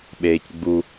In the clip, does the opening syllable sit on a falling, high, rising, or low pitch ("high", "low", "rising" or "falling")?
low